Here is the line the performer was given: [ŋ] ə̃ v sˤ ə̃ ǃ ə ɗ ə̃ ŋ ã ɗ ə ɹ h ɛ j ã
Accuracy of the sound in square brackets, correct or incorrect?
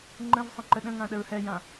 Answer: incorrect